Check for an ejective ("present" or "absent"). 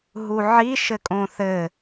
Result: present